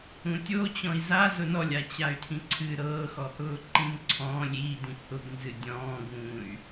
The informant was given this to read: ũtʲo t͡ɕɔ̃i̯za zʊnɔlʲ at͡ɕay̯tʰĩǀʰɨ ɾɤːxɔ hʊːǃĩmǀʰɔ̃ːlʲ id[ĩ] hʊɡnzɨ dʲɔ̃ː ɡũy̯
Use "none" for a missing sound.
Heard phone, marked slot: ĩ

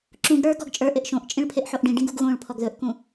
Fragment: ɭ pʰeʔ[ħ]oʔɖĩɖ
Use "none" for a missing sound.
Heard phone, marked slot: ħ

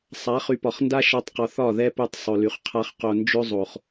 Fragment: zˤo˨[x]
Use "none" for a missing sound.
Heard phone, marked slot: χ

